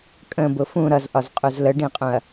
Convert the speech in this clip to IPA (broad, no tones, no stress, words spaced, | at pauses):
kʼə̃bʊ fũ ɾʌzʔɒzqʼuz ləɖĩqʼũɐ̯